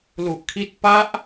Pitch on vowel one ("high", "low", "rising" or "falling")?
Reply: low